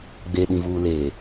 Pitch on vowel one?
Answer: low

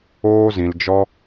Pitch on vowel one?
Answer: high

